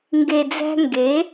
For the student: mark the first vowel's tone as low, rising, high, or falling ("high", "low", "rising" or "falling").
low